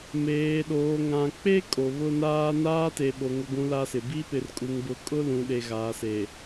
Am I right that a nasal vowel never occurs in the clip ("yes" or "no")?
no